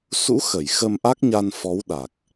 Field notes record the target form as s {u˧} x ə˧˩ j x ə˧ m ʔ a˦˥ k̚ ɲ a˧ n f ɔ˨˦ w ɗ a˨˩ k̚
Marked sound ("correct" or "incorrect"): incorrect